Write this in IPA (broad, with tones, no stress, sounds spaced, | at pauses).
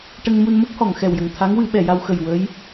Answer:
ʈ ə˧ ŋ m u˧ n m ə˦˥ k̚ h ɔ˨˩˨ ŋ x ɛ˨˩ w j ə˨˩ ŋ t̪ʰ a˧˥ ŋ w ɨ˨˩˦ ɓ ɛ˨˩˨ j a˧ w x ə˨˩ j w ə˧˥ j